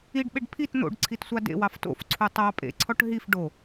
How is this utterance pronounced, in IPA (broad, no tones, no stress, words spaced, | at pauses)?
iɖɓeɖ pʰit n̪o̰ɖǀʰit sʷɑdḛwɑf to̰fǀʰu tˤɑ pʼḛǀʰɔʈ ɦif ɖo